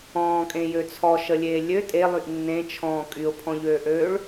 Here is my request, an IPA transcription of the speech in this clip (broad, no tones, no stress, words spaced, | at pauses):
ɔ̃ːkʼẽjø t͡sʰɔʃəlʲeː lʲø tʼelˠyʔ nːẽt͡ʃʰɔ̃ː kʼyʊ̯pʰɔ̃ʎøːʔøːɭ